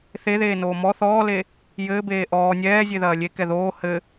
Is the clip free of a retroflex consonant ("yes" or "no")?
yes